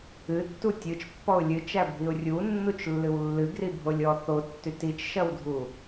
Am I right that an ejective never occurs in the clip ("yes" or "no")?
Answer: yes